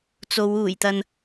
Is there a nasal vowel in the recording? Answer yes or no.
no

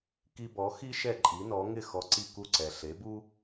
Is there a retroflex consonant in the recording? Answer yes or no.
no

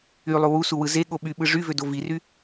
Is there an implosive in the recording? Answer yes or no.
yes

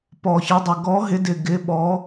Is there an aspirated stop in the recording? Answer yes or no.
no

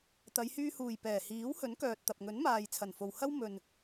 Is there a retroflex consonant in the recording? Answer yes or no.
no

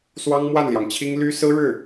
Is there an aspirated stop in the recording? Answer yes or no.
yes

